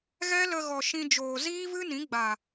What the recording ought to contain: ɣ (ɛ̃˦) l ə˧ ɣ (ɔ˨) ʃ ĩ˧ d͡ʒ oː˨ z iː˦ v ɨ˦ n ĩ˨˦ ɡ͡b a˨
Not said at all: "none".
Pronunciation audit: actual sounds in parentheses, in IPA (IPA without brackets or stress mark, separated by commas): ɛ˦, ɔ˨